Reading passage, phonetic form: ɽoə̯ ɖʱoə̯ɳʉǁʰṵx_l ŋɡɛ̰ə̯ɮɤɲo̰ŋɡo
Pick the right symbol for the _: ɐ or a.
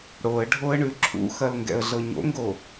ɐ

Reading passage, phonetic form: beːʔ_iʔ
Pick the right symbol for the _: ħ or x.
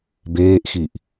x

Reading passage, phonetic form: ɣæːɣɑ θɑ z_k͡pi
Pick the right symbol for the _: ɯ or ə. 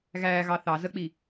ə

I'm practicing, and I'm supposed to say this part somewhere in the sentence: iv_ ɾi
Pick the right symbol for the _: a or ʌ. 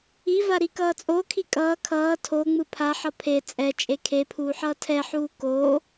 a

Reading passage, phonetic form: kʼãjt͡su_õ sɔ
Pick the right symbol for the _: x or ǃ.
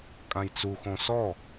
x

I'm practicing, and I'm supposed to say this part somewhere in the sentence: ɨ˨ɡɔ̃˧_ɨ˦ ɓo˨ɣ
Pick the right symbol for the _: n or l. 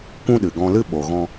l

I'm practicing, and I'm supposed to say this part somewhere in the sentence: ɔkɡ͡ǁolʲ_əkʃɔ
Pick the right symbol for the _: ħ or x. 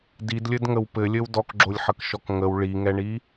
ħ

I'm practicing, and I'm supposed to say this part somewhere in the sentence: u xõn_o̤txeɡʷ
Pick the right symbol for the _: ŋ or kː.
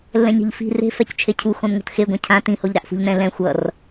ŋ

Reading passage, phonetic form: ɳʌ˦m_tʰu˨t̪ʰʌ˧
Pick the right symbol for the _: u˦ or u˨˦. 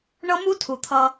u˦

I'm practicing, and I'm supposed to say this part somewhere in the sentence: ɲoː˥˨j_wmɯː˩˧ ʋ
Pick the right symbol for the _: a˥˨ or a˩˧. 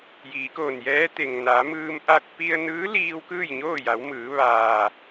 a˩˧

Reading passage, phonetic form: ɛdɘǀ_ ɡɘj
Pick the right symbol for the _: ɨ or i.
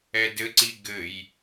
i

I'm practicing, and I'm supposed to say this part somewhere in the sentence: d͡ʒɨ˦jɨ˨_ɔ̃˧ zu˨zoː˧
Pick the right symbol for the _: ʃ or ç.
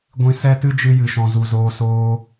ʃ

